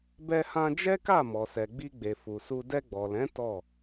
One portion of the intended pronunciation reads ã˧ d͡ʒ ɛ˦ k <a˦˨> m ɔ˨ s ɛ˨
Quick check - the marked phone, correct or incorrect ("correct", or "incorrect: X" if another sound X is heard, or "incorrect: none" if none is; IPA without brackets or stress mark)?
correct